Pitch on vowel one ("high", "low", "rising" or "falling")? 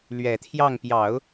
low